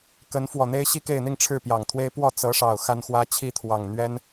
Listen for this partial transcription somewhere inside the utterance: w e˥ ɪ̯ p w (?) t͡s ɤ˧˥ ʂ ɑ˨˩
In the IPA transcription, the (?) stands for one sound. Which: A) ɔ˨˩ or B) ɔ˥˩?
B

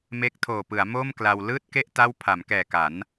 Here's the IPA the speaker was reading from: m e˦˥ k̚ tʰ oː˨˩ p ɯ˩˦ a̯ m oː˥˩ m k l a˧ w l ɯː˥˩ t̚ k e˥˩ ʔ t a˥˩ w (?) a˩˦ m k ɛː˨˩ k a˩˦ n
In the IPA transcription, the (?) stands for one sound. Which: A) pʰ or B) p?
A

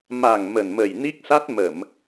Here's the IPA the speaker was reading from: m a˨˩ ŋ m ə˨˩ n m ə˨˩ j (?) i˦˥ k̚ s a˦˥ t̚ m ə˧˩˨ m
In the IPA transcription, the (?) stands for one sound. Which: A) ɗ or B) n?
B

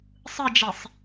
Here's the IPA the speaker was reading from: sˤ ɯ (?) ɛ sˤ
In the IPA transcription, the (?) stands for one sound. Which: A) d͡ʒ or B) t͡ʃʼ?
A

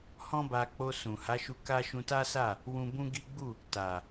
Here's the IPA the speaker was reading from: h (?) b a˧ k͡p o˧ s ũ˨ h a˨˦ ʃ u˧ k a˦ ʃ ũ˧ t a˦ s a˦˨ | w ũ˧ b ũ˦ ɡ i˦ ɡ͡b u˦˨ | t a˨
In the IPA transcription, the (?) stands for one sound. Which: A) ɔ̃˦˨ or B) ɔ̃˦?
B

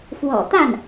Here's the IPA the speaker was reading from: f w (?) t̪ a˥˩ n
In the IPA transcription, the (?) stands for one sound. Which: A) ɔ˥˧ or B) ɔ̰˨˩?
B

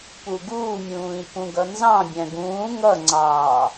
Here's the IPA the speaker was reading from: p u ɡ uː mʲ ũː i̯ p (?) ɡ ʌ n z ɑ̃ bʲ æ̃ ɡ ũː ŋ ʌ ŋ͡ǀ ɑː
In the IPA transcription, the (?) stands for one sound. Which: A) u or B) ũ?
B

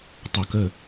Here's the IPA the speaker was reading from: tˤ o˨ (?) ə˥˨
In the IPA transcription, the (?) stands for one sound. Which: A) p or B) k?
B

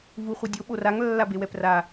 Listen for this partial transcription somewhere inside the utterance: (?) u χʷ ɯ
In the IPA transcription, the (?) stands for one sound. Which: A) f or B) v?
B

